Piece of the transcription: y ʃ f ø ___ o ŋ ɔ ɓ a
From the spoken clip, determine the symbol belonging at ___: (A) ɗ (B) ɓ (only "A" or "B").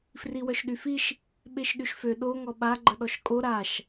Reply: A